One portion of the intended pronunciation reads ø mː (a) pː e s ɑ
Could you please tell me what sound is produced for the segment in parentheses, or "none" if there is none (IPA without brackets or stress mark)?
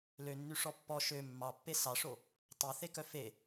ɑ